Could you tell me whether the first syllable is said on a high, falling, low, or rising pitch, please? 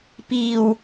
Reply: low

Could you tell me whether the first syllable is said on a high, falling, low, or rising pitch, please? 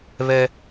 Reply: high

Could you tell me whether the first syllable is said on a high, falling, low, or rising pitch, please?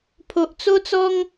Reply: low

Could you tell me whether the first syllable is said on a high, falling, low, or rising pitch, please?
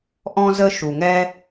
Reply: high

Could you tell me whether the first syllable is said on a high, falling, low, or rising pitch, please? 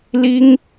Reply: high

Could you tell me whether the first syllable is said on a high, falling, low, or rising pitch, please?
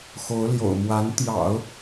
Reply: rising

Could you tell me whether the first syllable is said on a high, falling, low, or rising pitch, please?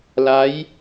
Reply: rising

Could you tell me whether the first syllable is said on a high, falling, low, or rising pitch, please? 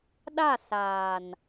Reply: falling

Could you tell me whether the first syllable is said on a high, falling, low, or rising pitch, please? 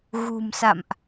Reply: low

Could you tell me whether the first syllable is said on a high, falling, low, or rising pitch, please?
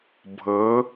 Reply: rising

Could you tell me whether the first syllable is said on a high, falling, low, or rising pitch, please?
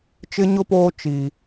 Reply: high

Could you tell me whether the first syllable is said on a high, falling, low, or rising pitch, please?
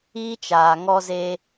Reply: high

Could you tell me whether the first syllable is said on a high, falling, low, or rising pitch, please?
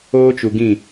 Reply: high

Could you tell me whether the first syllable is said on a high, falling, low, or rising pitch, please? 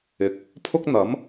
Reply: rising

